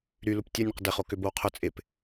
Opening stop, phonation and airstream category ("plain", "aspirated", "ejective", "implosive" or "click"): plain